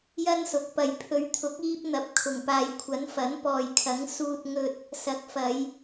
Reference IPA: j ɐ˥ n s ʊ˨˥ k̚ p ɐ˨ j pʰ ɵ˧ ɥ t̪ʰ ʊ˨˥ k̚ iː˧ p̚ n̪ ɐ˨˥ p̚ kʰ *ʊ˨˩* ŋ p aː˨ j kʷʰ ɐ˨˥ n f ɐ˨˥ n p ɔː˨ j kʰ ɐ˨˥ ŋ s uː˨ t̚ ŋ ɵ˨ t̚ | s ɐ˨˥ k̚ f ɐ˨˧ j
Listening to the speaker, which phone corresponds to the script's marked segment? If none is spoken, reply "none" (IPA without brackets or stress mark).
ʊ˨˩